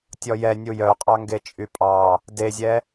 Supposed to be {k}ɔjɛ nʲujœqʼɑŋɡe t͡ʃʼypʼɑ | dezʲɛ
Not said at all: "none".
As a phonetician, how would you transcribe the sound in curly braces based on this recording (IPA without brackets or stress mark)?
tʲ